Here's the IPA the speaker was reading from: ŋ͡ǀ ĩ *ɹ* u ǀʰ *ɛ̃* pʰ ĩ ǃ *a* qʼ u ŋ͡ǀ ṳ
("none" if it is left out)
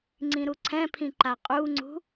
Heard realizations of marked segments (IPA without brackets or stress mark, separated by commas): ɾ, ɛ̃, a